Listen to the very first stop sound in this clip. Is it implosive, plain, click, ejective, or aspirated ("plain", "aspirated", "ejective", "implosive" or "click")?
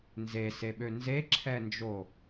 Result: implosive